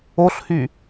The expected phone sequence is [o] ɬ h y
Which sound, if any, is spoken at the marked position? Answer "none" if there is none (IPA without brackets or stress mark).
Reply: o